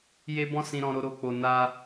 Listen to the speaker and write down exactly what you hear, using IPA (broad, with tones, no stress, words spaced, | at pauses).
je˦bɔ̃˦sĩ˧ ɾɔ̃˧ɾo˧ɾo˧k͡po˨ na˧